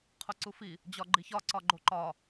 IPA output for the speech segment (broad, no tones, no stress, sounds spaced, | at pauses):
qʰ u ǀ u f i | d͡ʑ ɒ ɡ͡ǃ i ç ɒ ǀ ɒ ɡ͡ǃ o ǃ ɒ